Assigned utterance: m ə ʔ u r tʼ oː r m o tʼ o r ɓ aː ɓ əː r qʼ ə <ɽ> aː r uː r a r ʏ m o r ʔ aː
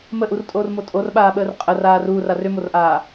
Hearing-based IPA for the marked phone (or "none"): r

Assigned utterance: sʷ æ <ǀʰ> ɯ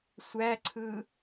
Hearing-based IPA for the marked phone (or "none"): ǀʰ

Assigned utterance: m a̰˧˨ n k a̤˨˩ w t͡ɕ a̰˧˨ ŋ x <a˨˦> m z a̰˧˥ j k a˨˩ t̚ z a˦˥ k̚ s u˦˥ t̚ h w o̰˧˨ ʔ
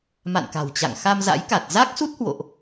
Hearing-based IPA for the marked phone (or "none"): a˧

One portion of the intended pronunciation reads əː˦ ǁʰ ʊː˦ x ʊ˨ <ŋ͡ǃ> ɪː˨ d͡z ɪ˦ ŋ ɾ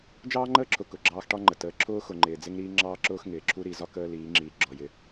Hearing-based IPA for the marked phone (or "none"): ŋ͡ǃ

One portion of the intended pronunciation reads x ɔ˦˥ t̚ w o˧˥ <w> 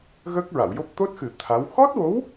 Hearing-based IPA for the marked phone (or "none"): w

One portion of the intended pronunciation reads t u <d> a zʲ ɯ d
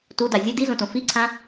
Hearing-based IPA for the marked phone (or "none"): d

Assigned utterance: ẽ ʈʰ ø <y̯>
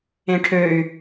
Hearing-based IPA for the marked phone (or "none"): y̯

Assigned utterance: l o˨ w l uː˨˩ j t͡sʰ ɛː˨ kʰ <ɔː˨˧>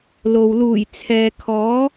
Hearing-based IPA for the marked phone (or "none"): ɔː˨˥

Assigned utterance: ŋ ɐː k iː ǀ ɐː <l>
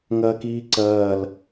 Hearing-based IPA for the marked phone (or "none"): l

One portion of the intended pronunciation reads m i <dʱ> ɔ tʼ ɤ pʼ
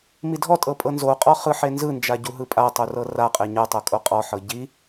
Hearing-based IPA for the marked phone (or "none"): dʱ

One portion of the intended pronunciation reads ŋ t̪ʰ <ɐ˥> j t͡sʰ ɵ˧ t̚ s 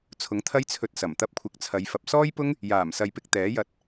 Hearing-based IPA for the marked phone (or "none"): ɐ˥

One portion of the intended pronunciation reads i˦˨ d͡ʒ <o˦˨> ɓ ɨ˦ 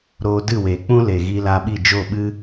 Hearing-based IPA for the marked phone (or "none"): o˦˨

